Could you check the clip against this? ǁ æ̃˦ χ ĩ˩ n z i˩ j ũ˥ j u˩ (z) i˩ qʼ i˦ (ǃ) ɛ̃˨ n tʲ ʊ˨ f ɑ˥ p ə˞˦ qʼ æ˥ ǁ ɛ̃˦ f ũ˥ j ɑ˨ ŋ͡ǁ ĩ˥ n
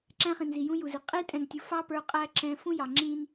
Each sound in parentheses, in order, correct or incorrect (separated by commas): correct, incorrect